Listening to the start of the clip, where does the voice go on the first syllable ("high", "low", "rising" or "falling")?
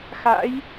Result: rising